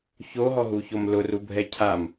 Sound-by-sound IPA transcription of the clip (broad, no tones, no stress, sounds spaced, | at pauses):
ç o ɦ ɔ ɦ u ç o m l ʊ r u bʱ ɛ cʰ a m